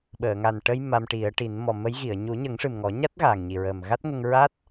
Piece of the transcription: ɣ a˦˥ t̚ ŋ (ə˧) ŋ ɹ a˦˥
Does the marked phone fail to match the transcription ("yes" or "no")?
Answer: no